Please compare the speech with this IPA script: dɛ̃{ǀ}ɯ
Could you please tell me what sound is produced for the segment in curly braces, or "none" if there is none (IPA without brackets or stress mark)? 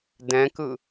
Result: k